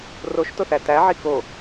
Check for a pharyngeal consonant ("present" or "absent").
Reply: present